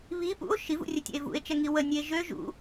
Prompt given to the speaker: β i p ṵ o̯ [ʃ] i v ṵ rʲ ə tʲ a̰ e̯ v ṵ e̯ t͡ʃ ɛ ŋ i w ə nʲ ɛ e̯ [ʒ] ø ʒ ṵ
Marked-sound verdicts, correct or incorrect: correct, correct

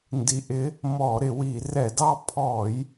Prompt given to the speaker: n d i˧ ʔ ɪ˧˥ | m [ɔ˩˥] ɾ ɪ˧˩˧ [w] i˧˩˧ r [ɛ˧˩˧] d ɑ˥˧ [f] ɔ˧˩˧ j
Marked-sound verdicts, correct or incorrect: incorrect: ɔ˧˩˧, correct, correct, incorrect: pʰ

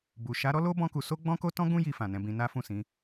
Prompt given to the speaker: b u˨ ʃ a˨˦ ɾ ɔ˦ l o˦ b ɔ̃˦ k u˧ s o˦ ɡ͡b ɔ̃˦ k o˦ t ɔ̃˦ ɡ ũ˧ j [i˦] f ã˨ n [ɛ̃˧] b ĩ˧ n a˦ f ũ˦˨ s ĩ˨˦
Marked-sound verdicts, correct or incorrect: incorrect: i˨, correct

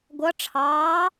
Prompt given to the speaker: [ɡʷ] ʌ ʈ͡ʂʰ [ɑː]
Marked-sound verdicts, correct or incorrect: correct, correct

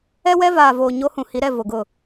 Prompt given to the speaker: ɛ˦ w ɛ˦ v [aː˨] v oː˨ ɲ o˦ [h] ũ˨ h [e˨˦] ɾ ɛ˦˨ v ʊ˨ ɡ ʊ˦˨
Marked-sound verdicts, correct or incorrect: correct, correct, incorrect: i˨˦

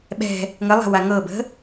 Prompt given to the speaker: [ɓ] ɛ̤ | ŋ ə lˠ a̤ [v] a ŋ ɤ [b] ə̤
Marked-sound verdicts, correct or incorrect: correct, incorrect: w, correct

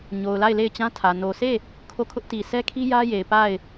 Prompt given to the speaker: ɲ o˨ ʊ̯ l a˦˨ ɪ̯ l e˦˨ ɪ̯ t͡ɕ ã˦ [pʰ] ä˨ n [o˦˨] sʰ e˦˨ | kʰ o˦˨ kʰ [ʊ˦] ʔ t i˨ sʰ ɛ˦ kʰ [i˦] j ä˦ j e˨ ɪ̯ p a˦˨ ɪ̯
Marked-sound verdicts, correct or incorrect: incorrect: tʰ, incorrect: o˨, correct, correct

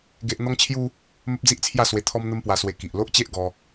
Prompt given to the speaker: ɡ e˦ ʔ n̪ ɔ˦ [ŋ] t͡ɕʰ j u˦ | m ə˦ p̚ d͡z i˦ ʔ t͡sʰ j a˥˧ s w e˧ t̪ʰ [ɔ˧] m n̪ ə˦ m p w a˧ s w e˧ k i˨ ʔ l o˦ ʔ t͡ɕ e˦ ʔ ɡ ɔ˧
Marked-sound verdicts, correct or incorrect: correct, incorrect: ɔ˦

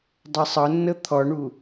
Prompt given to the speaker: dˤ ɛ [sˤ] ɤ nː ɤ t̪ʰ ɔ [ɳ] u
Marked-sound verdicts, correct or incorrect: correct, correct

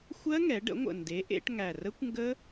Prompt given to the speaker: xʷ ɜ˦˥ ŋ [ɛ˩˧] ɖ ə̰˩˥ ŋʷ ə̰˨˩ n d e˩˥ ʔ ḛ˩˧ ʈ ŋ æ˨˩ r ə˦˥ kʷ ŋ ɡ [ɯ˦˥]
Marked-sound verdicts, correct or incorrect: correct, incorrect: ə˦˥

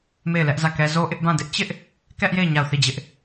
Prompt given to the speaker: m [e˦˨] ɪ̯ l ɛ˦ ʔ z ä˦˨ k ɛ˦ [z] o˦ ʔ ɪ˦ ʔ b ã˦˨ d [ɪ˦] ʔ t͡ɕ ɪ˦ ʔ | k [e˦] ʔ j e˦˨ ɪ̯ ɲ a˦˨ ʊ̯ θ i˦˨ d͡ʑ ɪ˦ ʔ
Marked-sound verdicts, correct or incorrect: correct, correct, correct, incorrect: ɛ˦

